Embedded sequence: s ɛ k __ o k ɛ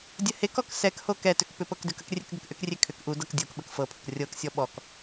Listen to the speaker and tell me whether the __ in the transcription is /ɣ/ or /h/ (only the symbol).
h